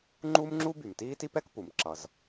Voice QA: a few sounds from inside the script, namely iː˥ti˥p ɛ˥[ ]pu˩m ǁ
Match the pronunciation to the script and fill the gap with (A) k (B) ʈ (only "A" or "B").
A